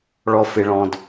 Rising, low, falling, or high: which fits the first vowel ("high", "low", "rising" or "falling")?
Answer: low